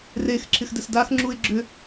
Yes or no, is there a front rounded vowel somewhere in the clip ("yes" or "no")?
yes